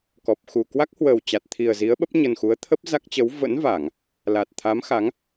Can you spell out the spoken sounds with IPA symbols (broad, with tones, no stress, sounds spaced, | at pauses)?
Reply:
k ɔ˨˩ p̚ x u˨˩ k w a˦˥ k̚ h w əː˨˩ w t͡ɕ a˨˩ t̚ t̪ʰ i˨˩ ə̯ z i˨˦ ə̯ ɓ ə˦˥ p̚ ɲ ə˨˩ n x u˨˦ ə̯ t̪ʰ ə˦˥ p̚ z a˦˥ k̚ t͡ɕ ə˨˦ w v ə̰˧˥ n v aː˧˩˨ ŋ | l a˨˩ t̚ t̪ʰ a˨˦ m x a˨˦ ŋ